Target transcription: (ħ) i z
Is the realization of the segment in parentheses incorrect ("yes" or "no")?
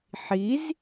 no